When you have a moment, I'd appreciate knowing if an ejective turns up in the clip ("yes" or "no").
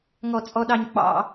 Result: yes